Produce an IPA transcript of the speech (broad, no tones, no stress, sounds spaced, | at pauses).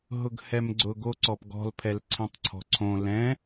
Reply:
ɦ ʊ ɡ h ɛ m ɡ͡ǀ ʊ ɡ o ǀ ɔ p ɡ ɔ̤ l pʰ ɛ l ǀʰ ẽ tˤ ǀʰ ɔ̤ ǀʰ õ l ɛ̃